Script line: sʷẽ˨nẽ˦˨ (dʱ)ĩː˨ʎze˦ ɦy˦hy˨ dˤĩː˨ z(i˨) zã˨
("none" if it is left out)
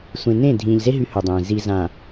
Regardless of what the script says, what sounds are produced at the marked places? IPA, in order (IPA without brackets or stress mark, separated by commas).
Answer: dʱ, i˨